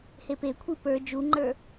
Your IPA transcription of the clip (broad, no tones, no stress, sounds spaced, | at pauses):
h e p e kʷʰ i p ə˞ d͡ʒ u ŋ͡ǃ ə˞